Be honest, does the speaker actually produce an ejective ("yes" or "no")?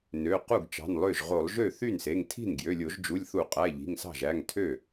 yes